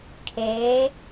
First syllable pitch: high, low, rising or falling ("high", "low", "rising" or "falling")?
rising